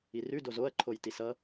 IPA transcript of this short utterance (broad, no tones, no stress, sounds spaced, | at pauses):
i r ʉ d o z o ɐ̯ ǃʰ o j t i s ʌ